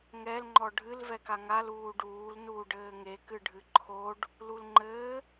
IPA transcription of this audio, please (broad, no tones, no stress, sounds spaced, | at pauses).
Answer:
ŋ ɛ l ŋ͡ǃ ɔ ɖʱ ɨ l v ɛ k a ŋ a l uː ɖ uː l n uː ɖ ɘː ŋ e k ɨ ɖʱ ɨ ǃʰ o ɖ | l u l ŋ͡ǃ ɘː